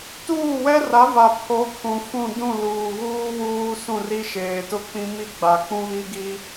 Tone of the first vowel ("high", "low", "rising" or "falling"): falling